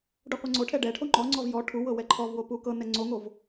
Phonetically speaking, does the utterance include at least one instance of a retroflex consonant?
yes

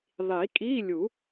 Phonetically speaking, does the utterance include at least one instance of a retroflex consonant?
no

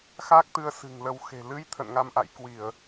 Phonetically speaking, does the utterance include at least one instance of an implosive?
no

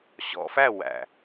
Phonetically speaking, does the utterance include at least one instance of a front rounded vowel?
no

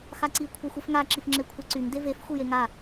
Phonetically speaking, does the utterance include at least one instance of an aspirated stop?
yes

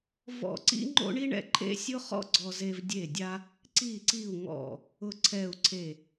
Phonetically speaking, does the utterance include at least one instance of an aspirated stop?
yes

